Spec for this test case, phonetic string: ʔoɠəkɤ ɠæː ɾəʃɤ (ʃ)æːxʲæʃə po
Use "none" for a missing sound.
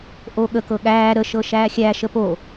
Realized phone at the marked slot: ʃ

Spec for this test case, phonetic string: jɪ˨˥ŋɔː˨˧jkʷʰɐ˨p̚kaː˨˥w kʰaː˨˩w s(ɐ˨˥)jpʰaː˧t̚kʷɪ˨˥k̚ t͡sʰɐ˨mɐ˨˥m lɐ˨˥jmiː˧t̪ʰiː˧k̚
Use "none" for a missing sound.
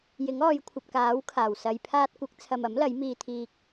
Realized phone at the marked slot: ɐ˨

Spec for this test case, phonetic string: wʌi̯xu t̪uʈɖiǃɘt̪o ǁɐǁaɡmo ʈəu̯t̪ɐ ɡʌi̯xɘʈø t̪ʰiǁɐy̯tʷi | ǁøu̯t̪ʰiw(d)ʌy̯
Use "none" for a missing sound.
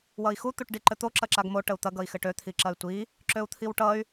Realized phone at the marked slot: ʈ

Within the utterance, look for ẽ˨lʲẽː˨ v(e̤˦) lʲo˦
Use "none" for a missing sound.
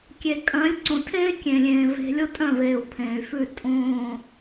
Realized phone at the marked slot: e̤˧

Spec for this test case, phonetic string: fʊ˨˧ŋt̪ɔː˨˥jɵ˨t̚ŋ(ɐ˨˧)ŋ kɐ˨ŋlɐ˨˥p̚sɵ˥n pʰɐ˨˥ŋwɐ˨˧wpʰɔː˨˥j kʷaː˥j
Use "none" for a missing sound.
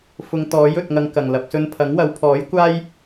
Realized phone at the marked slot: ɐ˨˧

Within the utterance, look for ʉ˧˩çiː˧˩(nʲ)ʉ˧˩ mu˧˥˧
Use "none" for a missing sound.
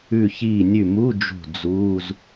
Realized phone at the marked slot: nʲ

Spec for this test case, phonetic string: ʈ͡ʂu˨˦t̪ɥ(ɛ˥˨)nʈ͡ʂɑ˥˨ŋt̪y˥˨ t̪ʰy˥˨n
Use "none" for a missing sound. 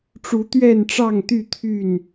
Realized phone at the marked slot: ɛ˥˨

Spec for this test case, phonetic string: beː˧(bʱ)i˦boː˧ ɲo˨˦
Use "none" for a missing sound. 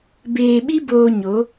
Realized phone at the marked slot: ɓ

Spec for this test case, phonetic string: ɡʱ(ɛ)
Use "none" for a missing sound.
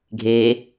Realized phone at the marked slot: e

